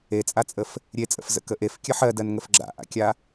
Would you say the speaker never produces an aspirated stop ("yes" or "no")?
yes